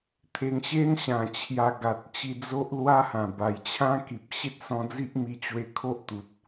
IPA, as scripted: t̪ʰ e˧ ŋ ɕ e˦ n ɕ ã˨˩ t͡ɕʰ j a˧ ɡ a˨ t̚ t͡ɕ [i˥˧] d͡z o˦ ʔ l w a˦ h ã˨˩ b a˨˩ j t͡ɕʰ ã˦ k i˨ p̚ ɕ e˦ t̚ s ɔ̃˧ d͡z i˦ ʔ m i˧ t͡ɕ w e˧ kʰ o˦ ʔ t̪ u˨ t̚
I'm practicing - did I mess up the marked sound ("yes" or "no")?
yes